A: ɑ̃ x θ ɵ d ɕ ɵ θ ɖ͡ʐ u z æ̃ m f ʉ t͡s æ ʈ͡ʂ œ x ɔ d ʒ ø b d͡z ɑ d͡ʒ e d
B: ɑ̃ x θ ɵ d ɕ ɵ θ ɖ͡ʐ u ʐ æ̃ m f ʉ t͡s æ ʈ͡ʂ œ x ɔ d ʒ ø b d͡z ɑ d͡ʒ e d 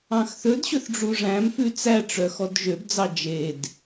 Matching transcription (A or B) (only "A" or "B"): B